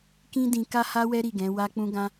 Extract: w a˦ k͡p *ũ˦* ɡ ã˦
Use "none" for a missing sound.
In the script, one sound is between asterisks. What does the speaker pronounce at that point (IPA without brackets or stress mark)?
ũ˦